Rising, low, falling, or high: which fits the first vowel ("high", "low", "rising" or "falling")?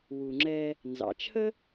low